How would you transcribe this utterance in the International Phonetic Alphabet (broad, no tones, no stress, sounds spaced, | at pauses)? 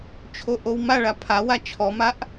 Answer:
t͡ʃʰ o ʔ o w m a ɭ a pʰ a w a t͡ʃʰ ɔ m a ʔ